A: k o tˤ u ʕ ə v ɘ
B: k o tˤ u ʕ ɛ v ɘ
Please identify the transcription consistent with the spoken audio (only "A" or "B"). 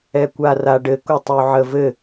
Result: A